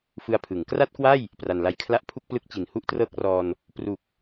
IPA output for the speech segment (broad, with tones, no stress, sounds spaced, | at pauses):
f ɯ˧ a̯ pʰ ɯ˩˦ ŋ k r a˥˩ t̚ k w a˥˩ j | p r a˨˩ n l a˧ j kʰ l a˥˩ ʔ pʰ u˥˩ k̚ p l ɯ˦˥ k̚ t͡ɕ i˨˩ n h u˥˩ ʔ t r ɤː˥˩ k̚ r ɔː˧ n | p r u˨˩ k̚